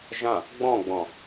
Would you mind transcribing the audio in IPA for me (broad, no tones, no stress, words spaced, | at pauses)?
ʒã | ɡ͡bɔ̃ɡ͡bɔ̃